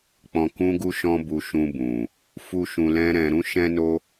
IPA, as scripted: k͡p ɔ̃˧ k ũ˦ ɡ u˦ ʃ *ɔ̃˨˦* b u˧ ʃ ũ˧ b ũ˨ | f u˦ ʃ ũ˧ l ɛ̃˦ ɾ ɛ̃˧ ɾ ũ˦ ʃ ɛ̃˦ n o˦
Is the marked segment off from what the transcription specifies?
yes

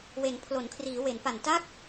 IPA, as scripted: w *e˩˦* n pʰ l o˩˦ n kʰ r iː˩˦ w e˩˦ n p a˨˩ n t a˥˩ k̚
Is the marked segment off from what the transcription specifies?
no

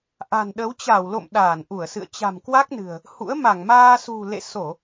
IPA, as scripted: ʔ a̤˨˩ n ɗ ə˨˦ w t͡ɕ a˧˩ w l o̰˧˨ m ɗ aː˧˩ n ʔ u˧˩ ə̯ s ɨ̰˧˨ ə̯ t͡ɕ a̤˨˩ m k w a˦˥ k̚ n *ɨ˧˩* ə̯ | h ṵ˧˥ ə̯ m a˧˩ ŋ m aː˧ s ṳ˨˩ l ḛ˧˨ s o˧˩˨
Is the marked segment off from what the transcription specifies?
yes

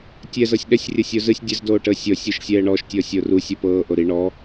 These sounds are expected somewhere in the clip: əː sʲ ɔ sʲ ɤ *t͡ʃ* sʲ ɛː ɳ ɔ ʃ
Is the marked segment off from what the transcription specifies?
yes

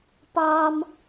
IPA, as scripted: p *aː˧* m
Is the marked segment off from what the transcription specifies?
no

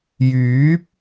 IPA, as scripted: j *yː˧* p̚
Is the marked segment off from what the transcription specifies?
yes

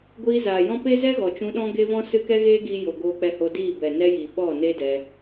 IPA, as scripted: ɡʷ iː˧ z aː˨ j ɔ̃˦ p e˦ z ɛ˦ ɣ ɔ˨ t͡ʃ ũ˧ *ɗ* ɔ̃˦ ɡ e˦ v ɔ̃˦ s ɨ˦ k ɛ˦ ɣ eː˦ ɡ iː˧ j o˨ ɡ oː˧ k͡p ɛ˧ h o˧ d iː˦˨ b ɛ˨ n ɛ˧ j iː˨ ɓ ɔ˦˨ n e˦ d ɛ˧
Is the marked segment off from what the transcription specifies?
no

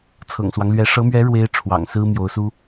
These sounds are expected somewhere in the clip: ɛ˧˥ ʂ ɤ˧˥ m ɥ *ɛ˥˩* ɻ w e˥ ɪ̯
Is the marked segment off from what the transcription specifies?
yes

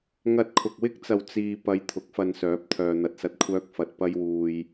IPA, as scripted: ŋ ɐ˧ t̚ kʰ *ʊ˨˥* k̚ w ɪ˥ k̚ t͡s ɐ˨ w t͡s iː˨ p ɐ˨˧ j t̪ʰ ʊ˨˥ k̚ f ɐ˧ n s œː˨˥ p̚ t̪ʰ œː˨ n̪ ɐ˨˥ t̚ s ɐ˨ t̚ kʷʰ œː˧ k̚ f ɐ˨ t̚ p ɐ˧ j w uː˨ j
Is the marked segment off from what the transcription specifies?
yes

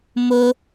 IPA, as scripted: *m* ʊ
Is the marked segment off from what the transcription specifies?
no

